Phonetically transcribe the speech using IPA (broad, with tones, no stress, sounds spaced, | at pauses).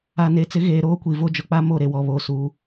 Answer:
a˨ n e˨ t͡s ɪ˨˦ ɣ eː˨ ɾ oː˦ kʷ i˨ v o˦ d͡ʒ ʊ˨ k͡p a˦ m o˦˨ ɾ e˨ w ɔ˨ β o˦˨ s u˨˦